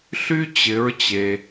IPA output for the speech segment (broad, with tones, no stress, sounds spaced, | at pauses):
ɬ y˧ t͡ɕ ɪ˩˧ ɹ t͡ɕ e˩